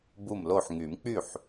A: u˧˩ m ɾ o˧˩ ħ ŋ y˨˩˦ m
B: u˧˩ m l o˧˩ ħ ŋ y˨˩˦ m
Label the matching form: B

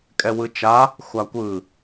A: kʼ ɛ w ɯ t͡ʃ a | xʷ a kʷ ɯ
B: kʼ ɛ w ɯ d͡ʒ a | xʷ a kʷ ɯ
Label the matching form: A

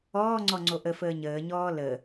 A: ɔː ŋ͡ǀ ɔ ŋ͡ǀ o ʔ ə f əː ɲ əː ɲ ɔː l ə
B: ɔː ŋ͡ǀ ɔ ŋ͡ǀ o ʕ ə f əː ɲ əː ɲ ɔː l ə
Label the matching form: A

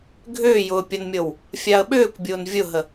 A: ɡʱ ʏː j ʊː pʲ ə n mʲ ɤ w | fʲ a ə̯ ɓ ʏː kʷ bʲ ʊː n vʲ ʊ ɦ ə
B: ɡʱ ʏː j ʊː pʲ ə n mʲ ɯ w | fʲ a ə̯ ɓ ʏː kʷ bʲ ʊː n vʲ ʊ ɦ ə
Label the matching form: A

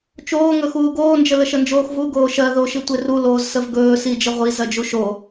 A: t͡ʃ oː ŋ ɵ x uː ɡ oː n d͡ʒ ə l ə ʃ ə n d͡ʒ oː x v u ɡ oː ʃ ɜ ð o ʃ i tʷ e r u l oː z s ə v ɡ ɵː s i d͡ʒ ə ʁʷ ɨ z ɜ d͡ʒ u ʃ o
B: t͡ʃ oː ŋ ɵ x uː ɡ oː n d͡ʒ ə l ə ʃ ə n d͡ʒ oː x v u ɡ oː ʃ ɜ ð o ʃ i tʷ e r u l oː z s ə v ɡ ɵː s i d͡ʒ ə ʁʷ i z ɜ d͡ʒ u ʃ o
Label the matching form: B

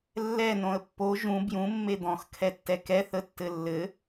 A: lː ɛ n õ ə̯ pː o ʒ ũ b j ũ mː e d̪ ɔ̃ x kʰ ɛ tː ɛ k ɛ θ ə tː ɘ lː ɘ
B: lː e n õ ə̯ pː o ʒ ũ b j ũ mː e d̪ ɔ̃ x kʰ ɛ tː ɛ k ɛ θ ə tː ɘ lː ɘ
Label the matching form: A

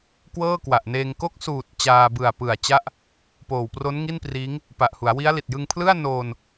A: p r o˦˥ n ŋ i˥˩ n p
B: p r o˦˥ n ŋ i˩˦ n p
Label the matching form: A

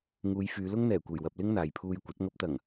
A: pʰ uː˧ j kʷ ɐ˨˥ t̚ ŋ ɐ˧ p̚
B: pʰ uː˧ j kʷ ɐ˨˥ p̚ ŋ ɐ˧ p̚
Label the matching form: A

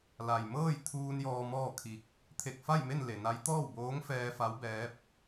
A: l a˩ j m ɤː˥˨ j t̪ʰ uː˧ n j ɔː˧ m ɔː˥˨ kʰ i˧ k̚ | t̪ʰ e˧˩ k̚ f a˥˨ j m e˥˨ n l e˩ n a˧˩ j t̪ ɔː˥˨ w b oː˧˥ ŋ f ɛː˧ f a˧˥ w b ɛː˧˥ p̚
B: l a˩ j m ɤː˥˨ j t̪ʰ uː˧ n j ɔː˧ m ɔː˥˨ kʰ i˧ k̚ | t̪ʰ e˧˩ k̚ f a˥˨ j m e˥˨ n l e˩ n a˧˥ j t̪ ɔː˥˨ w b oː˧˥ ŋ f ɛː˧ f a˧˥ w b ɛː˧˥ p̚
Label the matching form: B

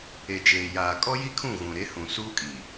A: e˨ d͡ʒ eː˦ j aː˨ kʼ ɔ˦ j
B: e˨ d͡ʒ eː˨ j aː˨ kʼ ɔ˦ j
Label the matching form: B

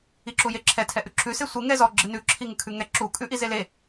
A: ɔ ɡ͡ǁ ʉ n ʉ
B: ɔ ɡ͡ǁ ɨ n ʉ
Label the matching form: B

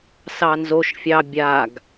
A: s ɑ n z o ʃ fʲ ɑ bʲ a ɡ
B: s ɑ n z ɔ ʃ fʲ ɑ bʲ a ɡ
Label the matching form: A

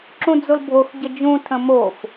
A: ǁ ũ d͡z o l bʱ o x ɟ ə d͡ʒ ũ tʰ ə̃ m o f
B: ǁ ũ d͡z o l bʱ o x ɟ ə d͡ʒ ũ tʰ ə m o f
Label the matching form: A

